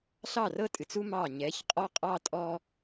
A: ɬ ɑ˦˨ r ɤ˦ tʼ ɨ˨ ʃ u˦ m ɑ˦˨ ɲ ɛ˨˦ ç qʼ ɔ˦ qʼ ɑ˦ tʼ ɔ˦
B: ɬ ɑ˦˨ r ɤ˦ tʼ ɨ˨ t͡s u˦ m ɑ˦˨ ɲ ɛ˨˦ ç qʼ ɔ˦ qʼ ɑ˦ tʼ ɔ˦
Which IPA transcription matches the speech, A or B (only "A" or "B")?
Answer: B